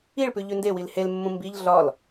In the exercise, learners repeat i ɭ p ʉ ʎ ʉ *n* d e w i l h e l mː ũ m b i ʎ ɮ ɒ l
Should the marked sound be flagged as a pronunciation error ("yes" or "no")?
no